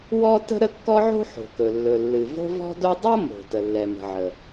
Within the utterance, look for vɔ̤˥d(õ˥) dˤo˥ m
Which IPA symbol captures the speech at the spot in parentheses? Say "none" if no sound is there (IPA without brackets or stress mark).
o˥